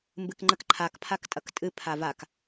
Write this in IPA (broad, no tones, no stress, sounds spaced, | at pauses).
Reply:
m b ɨ k ŋ͡ǃ ə k ǃʰ a k pʰ a k tʼ ɐ k tʼ ɨ pʰ a v a k